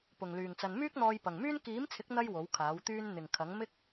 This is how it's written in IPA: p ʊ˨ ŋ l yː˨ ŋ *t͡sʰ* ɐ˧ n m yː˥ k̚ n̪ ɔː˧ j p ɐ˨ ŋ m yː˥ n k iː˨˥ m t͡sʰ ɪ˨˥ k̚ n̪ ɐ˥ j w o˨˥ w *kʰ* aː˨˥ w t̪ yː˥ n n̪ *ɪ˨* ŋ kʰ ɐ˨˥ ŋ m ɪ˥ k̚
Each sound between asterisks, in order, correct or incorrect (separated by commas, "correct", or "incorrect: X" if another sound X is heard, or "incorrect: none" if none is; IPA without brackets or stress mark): incorrect: t͡s, correct, correct